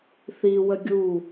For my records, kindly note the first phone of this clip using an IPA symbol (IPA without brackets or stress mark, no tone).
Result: θ